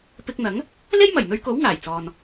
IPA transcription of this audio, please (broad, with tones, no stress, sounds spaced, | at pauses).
p ɪ˧ k̚ n̪ ɐ˨˥ ŋ | l e˥ j m ɐ˨˩ j n̪ ɵ˧ ɥ k o˨˥ w ŋ aː˨˩ j t͡s ɔː˨ n